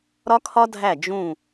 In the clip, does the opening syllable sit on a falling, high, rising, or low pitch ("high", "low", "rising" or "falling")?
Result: high